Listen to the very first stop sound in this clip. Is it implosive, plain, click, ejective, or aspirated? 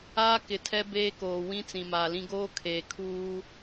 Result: plain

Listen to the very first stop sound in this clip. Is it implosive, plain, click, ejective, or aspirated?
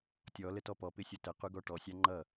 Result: plain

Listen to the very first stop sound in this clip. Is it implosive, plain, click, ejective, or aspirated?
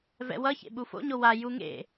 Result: implosive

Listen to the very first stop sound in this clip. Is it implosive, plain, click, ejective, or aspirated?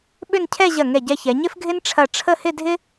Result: implosive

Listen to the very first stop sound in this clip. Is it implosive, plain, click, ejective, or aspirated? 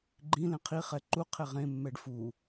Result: click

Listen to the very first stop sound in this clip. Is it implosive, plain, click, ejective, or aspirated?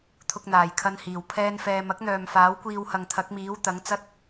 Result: aspirated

